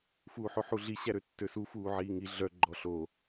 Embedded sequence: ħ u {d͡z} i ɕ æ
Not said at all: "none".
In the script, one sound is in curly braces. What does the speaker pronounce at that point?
ɮ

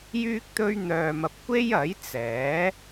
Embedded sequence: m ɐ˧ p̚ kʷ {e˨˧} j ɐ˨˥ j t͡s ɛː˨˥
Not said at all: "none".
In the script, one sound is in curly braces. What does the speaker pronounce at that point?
e˥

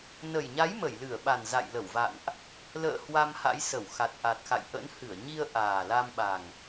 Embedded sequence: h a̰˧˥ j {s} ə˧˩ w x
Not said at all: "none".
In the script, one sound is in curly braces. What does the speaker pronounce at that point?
s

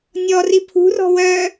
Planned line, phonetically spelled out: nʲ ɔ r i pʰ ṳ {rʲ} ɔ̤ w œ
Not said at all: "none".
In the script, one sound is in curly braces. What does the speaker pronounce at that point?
r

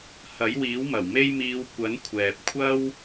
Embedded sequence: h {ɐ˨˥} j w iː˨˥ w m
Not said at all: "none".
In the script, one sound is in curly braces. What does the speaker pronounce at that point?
ɐ˨˥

